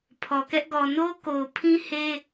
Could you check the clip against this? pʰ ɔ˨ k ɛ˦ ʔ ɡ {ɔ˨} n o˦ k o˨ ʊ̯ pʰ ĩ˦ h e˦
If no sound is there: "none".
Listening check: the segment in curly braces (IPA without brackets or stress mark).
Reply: ɔ˨